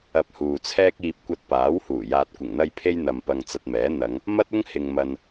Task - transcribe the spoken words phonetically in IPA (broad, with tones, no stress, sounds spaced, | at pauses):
ɐ˧ p̚ h uː˨ t͡sʰ ɛː˥ k̚ iː˧ p̚ kʷ ɐ˧ t̚ p aː˨˥ w h uː˨˩ j aː˨ t̚ kʷ ɪ˨˩ ŋ n̪ ɐ˧ j pʰ e˥ j n̪ ɐ˨ m p ɐ˧ ŋ t͡s ɐ˧ t̚ m ɛː˨˥ n̪ ɐ˨˧ ŋ | m ɐ˥ t̚ ʊ˥ ŋ h ɪ˨ ŋ m ɐ˨ n